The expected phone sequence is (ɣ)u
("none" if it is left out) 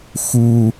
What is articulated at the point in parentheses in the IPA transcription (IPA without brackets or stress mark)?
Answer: x